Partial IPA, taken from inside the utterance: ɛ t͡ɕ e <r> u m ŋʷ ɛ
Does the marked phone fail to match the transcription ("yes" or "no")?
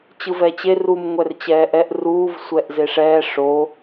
no